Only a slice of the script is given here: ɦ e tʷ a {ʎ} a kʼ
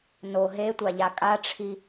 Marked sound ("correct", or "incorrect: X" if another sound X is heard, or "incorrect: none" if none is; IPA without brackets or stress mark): correct